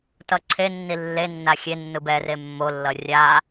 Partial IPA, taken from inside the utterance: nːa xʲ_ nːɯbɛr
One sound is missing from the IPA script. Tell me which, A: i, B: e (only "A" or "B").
B